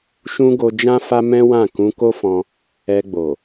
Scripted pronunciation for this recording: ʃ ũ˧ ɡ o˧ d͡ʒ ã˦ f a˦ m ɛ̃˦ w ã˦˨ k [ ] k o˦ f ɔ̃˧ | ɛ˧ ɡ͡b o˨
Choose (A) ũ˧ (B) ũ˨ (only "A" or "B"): A